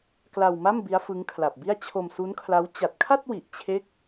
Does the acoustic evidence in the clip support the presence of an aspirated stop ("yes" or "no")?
yes